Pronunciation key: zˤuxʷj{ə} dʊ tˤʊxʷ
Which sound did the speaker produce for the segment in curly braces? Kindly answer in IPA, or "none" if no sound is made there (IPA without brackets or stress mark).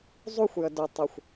ə